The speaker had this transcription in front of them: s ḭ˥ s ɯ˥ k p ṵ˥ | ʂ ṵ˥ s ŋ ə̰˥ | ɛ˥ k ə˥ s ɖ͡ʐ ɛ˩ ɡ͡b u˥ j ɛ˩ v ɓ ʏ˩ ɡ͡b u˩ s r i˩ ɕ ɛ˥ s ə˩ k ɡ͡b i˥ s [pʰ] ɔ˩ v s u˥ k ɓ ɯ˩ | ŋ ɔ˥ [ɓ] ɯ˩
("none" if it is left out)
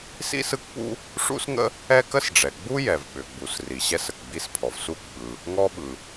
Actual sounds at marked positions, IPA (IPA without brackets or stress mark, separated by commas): pʰ, ɓ